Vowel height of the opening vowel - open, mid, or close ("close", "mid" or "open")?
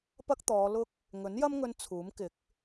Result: open